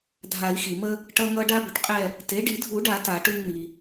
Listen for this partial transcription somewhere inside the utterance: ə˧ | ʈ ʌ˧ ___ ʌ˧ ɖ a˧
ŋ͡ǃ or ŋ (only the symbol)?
ŋ